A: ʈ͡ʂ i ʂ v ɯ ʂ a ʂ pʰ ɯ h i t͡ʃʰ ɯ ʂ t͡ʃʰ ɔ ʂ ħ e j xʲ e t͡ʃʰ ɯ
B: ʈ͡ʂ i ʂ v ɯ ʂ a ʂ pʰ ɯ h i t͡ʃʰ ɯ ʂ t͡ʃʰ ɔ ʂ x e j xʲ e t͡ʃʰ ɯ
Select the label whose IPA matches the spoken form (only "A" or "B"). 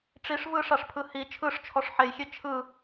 A